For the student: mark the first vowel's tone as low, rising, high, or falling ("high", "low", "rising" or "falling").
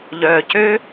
low